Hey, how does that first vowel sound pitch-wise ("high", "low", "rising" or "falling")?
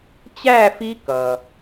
falling